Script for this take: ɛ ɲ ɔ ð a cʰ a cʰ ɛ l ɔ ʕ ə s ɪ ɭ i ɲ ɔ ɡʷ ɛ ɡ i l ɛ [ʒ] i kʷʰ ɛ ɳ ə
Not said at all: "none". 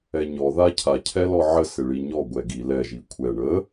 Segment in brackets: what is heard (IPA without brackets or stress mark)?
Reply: ʒ